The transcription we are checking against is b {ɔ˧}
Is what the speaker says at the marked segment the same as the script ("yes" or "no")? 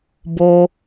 no